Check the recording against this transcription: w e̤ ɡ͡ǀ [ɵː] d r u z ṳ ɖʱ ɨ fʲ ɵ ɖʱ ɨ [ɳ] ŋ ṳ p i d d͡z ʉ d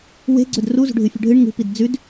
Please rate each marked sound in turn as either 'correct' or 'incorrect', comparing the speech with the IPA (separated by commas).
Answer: incorrect, correct